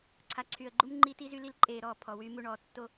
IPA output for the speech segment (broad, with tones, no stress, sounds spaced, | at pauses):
ǀʰ a˨ ǀʰ y˨ ə̯ ɡ͡ǃ u˦ m ŋ͡ǃ iː˦ t i˦ z y˦ l i˦ l ǃʼ eː˨ ɾ ɔː˨ pʰ ɔ˨ w yː˦ m u˦ ɳ ɔː˨ tː o˨